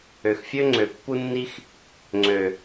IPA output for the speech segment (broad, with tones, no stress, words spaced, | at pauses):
ø˨xfʲø˦ŋ͡ǀø˨ pːu˦nːi˦x | ŋ͡ǀø˨